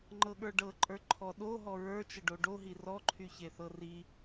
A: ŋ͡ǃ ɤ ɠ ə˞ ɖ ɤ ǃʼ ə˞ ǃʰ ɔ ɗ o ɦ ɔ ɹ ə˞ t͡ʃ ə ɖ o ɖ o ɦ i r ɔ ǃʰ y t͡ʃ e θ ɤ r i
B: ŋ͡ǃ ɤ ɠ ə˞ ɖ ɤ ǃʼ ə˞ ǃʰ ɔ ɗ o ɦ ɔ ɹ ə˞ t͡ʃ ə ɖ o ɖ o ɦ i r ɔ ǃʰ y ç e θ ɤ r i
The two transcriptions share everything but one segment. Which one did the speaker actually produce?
B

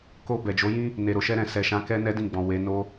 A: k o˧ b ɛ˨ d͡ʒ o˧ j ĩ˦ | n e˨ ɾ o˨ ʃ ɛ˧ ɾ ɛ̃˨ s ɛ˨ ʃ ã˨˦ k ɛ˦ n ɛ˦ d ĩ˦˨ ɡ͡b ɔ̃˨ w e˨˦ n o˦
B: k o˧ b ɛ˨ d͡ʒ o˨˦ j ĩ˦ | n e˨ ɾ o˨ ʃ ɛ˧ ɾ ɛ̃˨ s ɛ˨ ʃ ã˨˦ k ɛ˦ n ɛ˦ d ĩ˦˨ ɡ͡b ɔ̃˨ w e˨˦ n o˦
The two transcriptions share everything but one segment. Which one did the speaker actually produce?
B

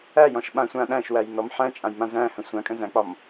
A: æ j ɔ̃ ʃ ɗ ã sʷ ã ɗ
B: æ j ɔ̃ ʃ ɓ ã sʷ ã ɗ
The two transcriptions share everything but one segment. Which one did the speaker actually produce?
B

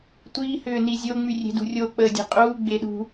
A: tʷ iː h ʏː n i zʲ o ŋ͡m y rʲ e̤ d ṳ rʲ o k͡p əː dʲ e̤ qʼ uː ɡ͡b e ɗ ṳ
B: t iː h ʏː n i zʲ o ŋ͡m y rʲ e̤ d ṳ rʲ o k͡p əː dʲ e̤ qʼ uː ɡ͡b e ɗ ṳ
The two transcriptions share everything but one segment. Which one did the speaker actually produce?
A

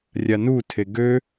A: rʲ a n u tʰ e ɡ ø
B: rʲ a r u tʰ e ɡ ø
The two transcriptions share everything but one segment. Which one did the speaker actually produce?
A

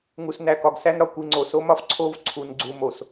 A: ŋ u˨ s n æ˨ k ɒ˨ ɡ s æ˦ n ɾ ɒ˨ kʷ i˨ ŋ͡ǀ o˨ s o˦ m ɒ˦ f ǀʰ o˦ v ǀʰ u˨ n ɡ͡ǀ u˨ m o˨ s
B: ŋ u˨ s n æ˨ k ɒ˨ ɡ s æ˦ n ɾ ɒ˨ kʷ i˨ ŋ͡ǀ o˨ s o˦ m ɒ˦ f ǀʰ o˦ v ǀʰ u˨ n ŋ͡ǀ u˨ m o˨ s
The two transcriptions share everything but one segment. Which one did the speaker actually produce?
A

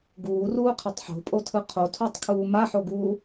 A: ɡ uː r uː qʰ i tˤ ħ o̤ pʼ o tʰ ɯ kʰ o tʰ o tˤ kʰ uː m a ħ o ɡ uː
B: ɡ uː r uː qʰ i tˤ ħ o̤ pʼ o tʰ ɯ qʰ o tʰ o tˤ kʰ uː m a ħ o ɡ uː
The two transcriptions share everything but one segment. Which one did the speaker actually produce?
B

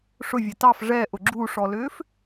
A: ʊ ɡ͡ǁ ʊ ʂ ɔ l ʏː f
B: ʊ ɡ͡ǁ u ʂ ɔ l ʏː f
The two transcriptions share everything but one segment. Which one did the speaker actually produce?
B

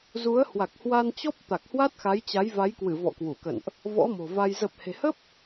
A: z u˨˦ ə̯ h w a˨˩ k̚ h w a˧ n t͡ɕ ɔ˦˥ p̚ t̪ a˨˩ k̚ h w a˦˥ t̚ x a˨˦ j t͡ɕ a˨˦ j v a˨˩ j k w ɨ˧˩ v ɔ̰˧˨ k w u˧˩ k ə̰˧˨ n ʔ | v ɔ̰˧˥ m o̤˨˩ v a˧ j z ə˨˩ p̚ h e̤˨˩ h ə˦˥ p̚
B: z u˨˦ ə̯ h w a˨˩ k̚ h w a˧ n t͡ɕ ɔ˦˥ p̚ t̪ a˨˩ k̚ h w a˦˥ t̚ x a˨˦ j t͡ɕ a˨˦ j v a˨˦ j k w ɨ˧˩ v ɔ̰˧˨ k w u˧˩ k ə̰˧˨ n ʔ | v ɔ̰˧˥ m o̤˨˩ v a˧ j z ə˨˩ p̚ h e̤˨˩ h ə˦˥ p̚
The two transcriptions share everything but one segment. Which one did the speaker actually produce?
B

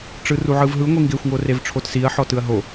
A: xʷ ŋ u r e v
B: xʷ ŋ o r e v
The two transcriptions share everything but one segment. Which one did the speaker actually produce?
B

